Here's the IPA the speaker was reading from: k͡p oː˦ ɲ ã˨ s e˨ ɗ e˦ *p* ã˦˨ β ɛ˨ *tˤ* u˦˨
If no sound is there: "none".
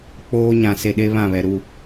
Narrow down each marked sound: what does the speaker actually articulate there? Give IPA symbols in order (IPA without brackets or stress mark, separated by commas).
β, ɾ